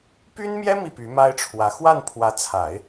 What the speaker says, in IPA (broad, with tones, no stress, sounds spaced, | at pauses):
p y˥ n m j ɛ˥ m i˥˩ p y˧˥ m a˥ ɪ̯ ʈ͡ʂʰ w ä˧˥ x w a˥˩ n pʰ w ä˧˥ t͡sʰ a˨˩˦ ɪ̯